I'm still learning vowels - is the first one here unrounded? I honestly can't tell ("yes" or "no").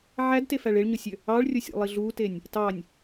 yes